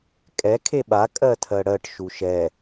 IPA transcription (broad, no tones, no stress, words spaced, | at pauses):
kʼɛ kʰeɓa kʼɜtʰɜɽɜʈ ʃuʃɛ